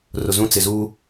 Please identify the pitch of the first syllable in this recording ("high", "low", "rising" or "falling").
low